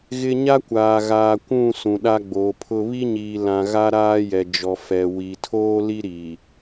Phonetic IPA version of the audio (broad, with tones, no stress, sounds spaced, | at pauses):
ɣ ɪ˦ ɲ a˦ kʷ aː˨ ɣ aː˨ kʷ ũ˦˨ s ũ˨ ɗ a˦ ɡ͡b oː˨˦ pʰ ʊ˦ β i˦ ɲ iː˨ l ã˨ ɣ a˦ ɾ aː˦ j ɛ˨ d͡ʒ ɔ˨ f ɛ˨ w i˨ tʰ oː˦ l i˦ ɾ iː˨